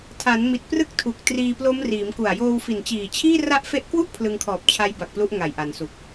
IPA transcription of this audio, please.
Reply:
tʰ a˩˦ n m i˨˩ t̚ p r ɯ˥˩ k̚ tʰ u˨˩ k̚ t r iː˧ p l o˦˥ m r iː˩˦ m k u˨˩ a̯ j oː˧ w f i˨˩ n t͡ɕ iː˨˩ t͡ɕʰ iː˥˩ r a˦˥ ʔ f e˦˥ ʔ k w u˥˩ ʔ pʰ l ɯ˧ ŋ kʰ ɔː˨˩ p̚ t͡ɕʰ a˦˥ j b a˨˩ k̚ p l u˦˥ ʔ ŋ a˨˩ j ʔ a˩˦ n s u˨˩ k̚

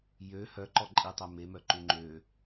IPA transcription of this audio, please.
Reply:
j ø h œ ǃ ɔ ǃʼ i tˤ ɛ m e m œ ǃ ʉ ŋ͡ǃ ø

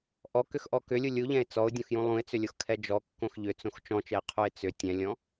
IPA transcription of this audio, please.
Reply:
ʔ ɔ k ʏ x ʔ ɔ k ʏ lʲ u lʲ u ʎ ɛ̃ ɪ̯ t͡s ɔ ʊ̯ dʲ õ x j ũ lˠ ũ ɪ̯ t͡s ʏ lʲ o x kʰ ɛ d͡ʒ ɔ kː õ x ʎ ʏ t͡s õ x t͡ʃ ɔ̃ t͡ʃ ɛ ɪ̯ qʰ u ɪ̯ t͡s ʏ tʲ ɛ̃ lʲ ɔ̃

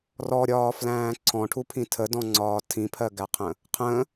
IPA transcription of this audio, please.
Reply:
r ɔ ɾʲ ɒː f l æ̃ː ǀʰ ɔ̃ ʈʰ u pʰ ĩ tʰ ə d ɔ̃ ŋ͡ǀ ɒː tʰ ĩ pʰ ɜ ɡ æ qʰ ə̃ | qʰ ə̃

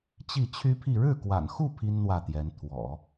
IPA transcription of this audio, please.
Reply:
t͡ɕ i˥˩ t͡ɕʰ y˥ pʰ i˥˧ ɻ ɻ̩˥˩ k w a̰˨˩ n x u˥˩ pʰ i˥ n n̪ w ä˥˩ t̪ j ɛ˧˥ n t̪ʰ w ɔ̰˨˩˦

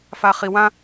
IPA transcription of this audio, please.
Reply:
f a χ i w ã

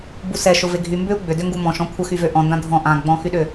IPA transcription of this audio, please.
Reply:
b u s ɛ ʃ ʊ v e ɡʱ y m b ʏ u̯ ɡ͡b ʏ d ʏ ŋ ɡ u m ɔ̃ ʃ ɔ̃ kʷʰ ə x y v ø ʔ ɔ̃ n d ã dʱ ɔ̃ ʔ ã ɡ͡b ɔ̃ x y ɗ ʏ

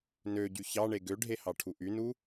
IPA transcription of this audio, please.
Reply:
n ø ɟ y ç ɑ ɳ e ɡ ø ɖʱ e h ɑ ʈʰ u ʔ y n u

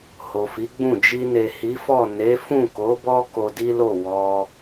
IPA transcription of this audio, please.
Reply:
h o˨ f i˨˦ ɡ͡b ũ˦˨ d͡ʒ i˧ n e˨ h i˨˦ f ɔ˦˨ n e˨˦ f ũ˦˨ k o˨˦ b ɔ˦ k o˧ d i˦ l o˦˨ w ɔ˧

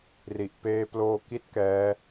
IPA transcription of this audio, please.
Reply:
r i˨˩ ʔ p eː˧ p l oː˧ k i˦˥ t̚ k ɛː˦˥

